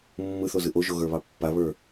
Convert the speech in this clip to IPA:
mː ɯ θ o z ɯ ʔ o ʒ o ɣ ə˞ β ɑ pː a β ə˞

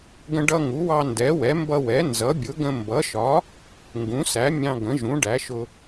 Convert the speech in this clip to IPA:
ɡ ə̃˧ ɖ ʌ˧ ŋ u˩˥ w ɑ˧ n d ɛ˩˥ w ɛ˩˥ m b ʌ˧ w ɛ˩˥ n z ʌ˩˥ bʲ ʊ˩˥ ɡ ə̃˧ m b ʌ˩˥ ʃ ɒ˩˥ | ŋ ɡ ũ˩˥ s æ˩˥ mʲ ɑ̃˧ ɡ ə̃˩˥ ʒ ũ˩˥ ɖ æ˩˥ ʃ ʊ˧

